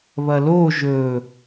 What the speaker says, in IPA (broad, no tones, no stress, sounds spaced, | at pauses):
β ɐ l o ʒ ɵ